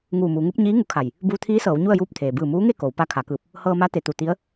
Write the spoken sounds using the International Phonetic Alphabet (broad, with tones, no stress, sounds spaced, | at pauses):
ŋ uː˧˩ m uː˩˧ ŋ u˧˥ p̚ ɲ iː˧˥ ŋ u˧ kʰ a˧˩ j | b uː˧ t̪ʰ iː˧˥ s ɤː˩˧ w ɲ u˥˨ ə̯ j uː˥˨ p̚ t̪ʰ eː˩ b ɯː˧˩ m uː˧˥ ŋ e˥˨ k o˩˧ w p a˧˥ kʰ a˩˧ k ɯː˧˩ p̚ | h ɤː˧ m a˧˥ t̪ e˩ t̪ u˧˩ t̪ i˧˥ ə̯